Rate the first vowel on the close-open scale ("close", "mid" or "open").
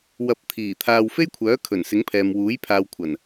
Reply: open